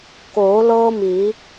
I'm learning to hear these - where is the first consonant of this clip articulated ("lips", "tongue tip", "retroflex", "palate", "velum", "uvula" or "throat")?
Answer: velum